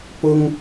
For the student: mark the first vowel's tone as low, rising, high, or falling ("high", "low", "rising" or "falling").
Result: high